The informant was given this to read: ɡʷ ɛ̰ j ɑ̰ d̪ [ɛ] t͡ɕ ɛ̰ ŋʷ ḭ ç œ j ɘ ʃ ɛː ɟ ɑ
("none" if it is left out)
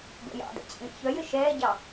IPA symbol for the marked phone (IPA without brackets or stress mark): ɛ̰